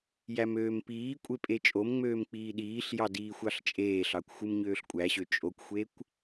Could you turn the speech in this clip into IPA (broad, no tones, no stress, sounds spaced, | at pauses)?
j æ m øː m p iː kʷʼ e pʼ e t͡ʃʼ o m ŋ͡m øː m k͡p iː ɗ iː ɬ j ɑ d iː xʷ ɑ ɬ t͡ʃʼ eː ɬ ɑ kʷ xʷ ɯ m ɲ øː ɬ kʷʼ æ ɕ ø t͡ʃʼ o kʷ xʷ e kʷ